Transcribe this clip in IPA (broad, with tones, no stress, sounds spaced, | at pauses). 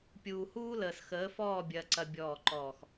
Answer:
pʲ uː˨ h uː˦ l əː˨ s x əː˨˦ f ɔː˦˨ bʲ ɐː˨ ǀ ɐ˨ bʲ ɔː˦˨ ǃ ɔː˦˨ x